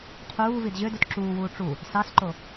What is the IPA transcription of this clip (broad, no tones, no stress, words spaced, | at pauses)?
qʰuː vidʑødut ǁuːwuː ʈ͡ʂu | sɑsǃo